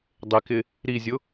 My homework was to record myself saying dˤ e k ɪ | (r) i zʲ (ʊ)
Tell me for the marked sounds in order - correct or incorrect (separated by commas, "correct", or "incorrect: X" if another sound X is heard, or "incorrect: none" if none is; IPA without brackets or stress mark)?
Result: incorrect: ɾ, correct